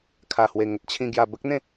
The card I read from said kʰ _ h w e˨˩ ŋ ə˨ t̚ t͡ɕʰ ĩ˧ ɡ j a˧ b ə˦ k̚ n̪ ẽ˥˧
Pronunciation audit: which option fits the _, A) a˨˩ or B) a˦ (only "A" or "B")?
A